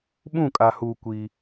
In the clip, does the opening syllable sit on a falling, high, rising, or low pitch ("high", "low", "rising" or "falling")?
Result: falling